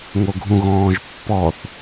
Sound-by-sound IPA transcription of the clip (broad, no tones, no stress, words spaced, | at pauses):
ŋoɡʱũɣɔ̃ːʒpːɔθ